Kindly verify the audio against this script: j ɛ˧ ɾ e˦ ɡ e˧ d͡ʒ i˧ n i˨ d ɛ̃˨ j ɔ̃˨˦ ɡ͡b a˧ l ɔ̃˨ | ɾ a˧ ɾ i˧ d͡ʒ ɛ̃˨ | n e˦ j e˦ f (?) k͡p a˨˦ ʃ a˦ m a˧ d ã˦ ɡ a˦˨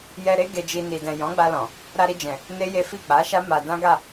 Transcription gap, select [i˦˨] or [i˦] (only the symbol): i˦˨